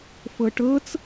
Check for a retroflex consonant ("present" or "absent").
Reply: present